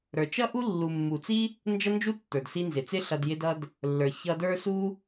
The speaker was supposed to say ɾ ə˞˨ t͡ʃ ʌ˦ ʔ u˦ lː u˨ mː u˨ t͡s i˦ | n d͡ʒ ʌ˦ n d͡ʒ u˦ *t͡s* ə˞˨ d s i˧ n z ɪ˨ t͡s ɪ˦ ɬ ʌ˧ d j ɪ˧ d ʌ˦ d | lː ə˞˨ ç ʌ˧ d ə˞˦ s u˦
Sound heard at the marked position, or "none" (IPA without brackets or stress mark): tː